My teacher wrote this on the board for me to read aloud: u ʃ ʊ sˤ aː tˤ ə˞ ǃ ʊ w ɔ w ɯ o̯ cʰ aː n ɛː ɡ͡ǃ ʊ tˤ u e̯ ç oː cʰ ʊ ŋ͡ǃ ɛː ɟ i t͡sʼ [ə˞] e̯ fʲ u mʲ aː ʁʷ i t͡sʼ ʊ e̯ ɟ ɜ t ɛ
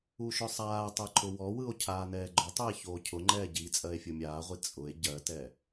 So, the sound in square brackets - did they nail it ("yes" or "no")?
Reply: no